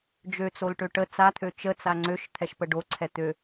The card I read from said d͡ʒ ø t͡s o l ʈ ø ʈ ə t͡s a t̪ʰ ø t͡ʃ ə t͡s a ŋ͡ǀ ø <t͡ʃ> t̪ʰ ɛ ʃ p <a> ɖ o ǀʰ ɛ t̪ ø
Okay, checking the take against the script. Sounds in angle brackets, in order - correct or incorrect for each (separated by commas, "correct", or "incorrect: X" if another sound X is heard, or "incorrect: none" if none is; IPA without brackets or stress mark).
incorrect: ʃ, incorrect: ə